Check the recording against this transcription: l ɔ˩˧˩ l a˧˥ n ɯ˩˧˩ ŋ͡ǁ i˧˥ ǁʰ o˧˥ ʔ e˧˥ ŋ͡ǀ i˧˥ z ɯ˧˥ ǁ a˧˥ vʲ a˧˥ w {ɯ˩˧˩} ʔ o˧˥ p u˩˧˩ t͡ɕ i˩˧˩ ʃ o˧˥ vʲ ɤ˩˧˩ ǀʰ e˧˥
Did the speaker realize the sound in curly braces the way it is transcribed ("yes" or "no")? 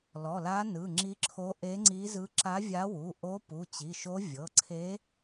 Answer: no